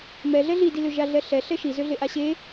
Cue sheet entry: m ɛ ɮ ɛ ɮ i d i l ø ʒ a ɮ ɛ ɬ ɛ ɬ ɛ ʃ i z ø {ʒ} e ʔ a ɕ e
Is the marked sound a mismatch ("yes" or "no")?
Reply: yes